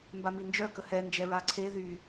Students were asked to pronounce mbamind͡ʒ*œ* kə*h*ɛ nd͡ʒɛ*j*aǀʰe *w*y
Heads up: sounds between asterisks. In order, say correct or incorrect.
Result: correct, correct, incorrect: ɹ, incorrect: ð

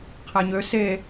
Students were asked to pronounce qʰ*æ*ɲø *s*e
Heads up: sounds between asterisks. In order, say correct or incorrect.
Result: correct, correct

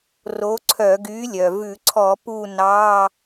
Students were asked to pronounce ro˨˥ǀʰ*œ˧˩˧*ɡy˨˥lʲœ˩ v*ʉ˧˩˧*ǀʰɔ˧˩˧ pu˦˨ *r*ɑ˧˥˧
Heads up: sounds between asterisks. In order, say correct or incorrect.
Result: correct, correct, incorrect: n

